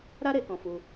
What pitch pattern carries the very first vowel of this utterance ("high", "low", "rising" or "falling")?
high